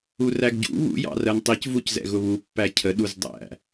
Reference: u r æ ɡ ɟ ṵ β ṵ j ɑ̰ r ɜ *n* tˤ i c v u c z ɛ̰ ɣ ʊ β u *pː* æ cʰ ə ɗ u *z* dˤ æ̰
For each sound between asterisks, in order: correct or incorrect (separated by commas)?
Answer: correct, correct, correct